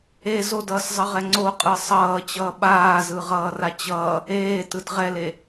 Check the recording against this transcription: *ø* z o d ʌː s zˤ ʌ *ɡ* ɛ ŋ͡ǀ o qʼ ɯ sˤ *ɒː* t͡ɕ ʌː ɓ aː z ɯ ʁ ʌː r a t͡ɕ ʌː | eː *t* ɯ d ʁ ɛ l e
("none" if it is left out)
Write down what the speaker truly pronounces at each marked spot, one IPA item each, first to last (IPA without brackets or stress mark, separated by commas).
e, ʁ, ʌː, t